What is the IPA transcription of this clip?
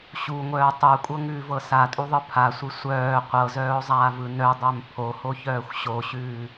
ɕuŋʷœːo̯ tˤʉo̯kʷʼɤŋʉːvɤ satʼuðˤɯ pʰasʷɯ sʷœː qʷɤzœːo̯zˤaːvɯ nœdˤœm pʰohoçœːxʷ ɕoɕʉː

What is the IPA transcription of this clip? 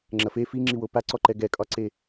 ŋ͡ǁɐfe fiŋ͡ǁiwo paǀɔǃɛ ɡɛkʼɒǀe

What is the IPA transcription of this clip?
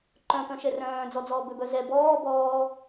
ǃœ̃kœ̃ ʃɛrœ̃ːd͡zɔd͡zɔː bøbœzɛ bɔː bɔː

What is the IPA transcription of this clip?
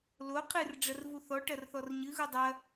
lo qʰɨrɖ͡ʐɐr vuθɔʈɐr θɔrɲɨɣu dˤɐ

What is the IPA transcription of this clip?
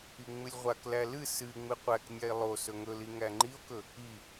iŋ͡mɨlʲʁʷaklæ lɨ sɨ ŋ͡mɨqʷæknʲae̯ lˠo sɵŋɵli ŋæŋ͡ǃio̯kɵ | i

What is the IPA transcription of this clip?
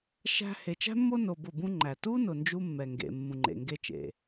ʃæ̤˧ he˨t͡ʃæ̤˦mːo˦ no˧bʊ˦˨bũ˦ŋ͡ǃæ˨ tu˦ nʊ˨ nd͡ʒu˦mːɛ˨ŋɡḛ˨mːũ˨ ŋ͡ǃḛ˨ŋɡe˦t͡ʃḛ˨

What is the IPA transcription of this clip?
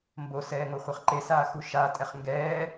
mbosɛː ŋoχʷaχǃesaː xuʃaːtʼɛχ ŋɡɛː

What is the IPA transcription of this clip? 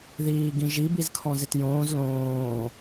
ðiːɡĩʒi bizkʰɔ̃zɪtjõːz lõː

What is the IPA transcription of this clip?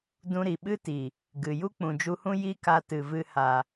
dũ˧ɾi˨ ɓɨ˦ti˨ | ɡɨ˨ ju˦k͡pũ˨d͡ʒu˧hũ˦ ji˦ka˧ tɨ˨vɨ˧ ha˨

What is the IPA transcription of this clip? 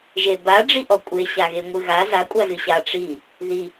ʒeba ɖ͡ʐiʔɔkʷʼe ɕaɣeŋʷɨɣa za kʷʼazɨɕa ʈ͡ʂi | ði

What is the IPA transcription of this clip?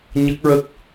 ɲə˦˥k̚ɹə˦˥k̚

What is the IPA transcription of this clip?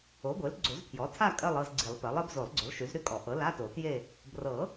o˩˥ɡʷe˩˥lɡ͡ǀo˨˩˦zpʰjɔ˩˥ tʰa˥˧ kʼɜ˥˧lˠɤ˥˧zɡ͡ǀi˨˩˦lˠpɜ˩˥lˠ ɜ˩˥bzo˨˩˦lˠɡ͡ǀʏ˩˥lˠ ʃy˩˥zɾy˥˧kʼɔ˨˩˦ ʔɤ˩˥la˧˥˧to˨˩˦ tje˥˧ | brɤ˨˩˦

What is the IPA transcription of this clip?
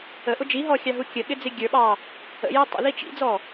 əʔʊ d͡ʒiɦɔxʲɑɦu kʲəɠɪd͡zɪ ɡʲə˞ɓɑ | ə̰jæ tˤə̰ði t͡ʃḭd͡zɔ

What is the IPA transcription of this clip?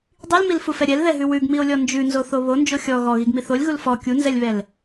dˤilmilfufɛ ɾʲɛlðɛɦʉ wʉɡmio̯lʲɔ nd͡ʒʉnzoθo βond͡ʒo xʲɔ ɣɔɣiɡmi θolʲɣul fɔ kʲunzɛlʲβɛl

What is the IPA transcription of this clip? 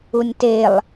unʲtelˠ

